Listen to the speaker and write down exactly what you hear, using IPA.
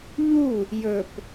ʎ u | j ɵ p

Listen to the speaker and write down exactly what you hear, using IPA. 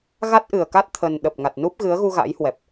ɣ a˦˥ t̚ ʔ ɨ˨˩ ə̯ k a˦˥ t̚ t̪ʰ ə˨˩ n ɗ ə˨˩ p̚ ŋ a˨˩ t̚ n u˦˥ p̚ ɣ ɨ˨˦ ə̯ ɣ u˧ ɣ a̰˧˥ j h w ɛ˨˩ p̚

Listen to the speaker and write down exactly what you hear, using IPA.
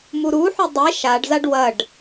m u ɾ u ħ u dˤ e ʃ a ɖ z a ɖ w ɐ ɖ

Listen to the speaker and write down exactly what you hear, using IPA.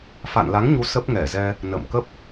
f a̰˧˨ n l a˨˦ ŋ ɲ u˨˦ s ə˦˥ p̚ ŋ ɛ˧˩ z ɛ˧ | n ə̰ː˧˨ m k ə˦˥ p̚

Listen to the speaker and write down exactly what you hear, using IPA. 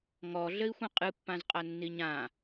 ŋ ɔ ɮ ɘ i̯ xʷ ĩ qʼ ɨ pː ã z qʼ a nː i ɲ ã

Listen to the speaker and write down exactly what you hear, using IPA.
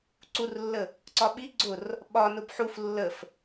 ǀ u r lː ə | ǀ ɒ ɓ i ɡ͡ǀ ʊ r | ɓ ɒ n ʊ b ħ u f lː ə f

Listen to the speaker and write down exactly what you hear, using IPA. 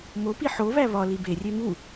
m o p i ħ o β æ β ɒ l i b e rʲ e m u

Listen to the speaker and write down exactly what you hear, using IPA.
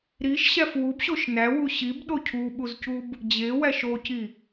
ɾ i ʃ ɕ æ f w u b ɕ o ʃ n æ w u ɕ i b ɗ o cʰ u ɓ u z c u b | d͡ʑ e w æ ʃ o c i

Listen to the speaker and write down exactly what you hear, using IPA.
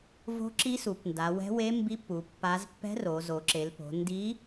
v o̤˧˥ ǁ i˧˥ s u˩˧ p n d a˩˧ w ɛ̤˧˥ w e˧˥ m b i˧˥ pː u˩˧ pː a˧˥ z pː ɛ̤˧˥ r o˩˧ z o˩˧ ǁ e˩˧ l p o̤˩˧ n d i˧˥

